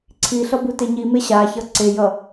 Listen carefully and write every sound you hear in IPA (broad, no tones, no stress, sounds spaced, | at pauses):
ǀʰ i ɬ ʌ b u t e ɲ i m e ɕ a ç ʌ ǀ e j ʌ